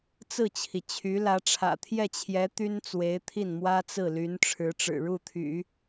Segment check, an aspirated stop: present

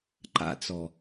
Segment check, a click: present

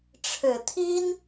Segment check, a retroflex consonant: present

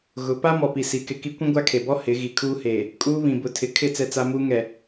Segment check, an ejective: present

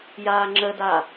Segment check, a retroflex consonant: absent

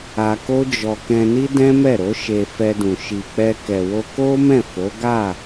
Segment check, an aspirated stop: absent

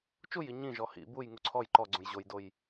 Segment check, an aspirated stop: present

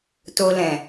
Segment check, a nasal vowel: present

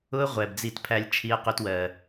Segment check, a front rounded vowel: absent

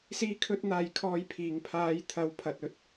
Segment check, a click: absent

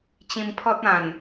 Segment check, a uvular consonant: absent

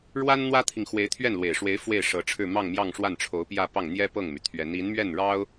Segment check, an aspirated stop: present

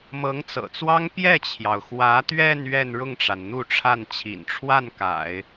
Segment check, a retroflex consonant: present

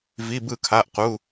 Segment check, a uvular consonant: present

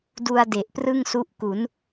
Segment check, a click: absent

